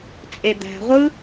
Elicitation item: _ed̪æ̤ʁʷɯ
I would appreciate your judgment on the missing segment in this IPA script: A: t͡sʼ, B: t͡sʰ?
A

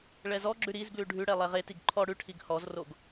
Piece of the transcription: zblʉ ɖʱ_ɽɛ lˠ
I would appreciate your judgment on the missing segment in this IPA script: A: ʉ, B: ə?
A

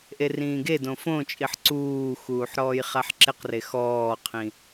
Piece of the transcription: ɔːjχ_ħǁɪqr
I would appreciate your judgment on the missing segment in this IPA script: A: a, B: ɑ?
A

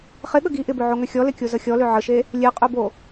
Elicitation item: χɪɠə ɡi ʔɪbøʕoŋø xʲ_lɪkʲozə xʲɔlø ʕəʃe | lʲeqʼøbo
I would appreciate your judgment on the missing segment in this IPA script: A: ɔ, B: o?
A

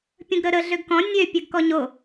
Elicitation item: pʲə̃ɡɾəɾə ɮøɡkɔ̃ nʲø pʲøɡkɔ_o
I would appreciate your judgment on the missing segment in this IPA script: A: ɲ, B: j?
A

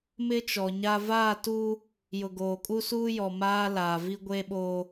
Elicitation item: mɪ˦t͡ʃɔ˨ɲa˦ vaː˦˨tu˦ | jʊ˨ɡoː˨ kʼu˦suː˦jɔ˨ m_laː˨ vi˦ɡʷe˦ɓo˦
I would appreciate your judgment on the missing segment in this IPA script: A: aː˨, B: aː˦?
B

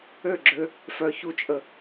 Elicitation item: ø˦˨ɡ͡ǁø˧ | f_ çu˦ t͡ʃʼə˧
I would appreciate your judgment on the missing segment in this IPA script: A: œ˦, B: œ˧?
B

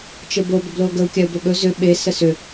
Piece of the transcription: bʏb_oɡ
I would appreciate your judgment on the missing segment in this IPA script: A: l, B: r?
A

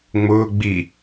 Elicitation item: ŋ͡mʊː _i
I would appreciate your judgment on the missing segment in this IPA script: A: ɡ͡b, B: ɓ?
A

